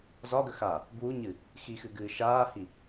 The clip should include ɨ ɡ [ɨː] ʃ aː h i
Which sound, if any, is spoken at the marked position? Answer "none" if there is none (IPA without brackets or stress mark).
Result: ɨː